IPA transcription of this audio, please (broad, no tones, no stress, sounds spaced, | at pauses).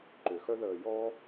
ǃ ʏ x œ ð əː j ɔ